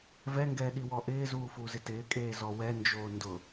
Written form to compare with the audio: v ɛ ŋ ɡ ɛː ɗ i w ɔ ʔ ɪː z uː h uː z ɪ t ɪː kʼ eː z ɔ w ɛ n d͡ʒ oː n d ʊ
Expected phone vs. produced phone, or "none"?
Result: h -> f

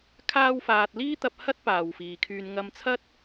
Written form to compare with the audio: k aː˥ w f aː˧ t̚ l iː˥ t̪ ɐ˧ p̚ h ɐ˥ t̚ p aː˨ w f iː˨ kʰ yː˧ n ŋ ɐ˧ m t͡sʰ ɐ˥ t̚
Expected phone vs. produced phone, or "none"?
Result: k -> kʰ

